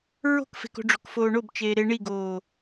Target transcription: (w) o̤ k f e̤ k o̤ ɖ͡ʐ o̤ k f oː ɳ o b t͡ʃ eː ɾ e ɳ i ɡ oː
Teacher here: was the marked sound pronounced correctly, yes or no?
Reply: no